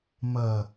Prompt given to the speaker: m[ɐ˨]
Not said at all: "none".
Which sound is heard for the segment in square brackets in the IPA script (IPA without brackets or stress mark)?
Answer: ɐ˨